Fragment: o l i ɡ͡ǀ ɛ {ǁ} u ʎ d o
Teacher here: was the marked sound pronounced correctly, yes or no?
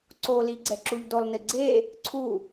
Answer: yes